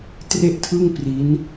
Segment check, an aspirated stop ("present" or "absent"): present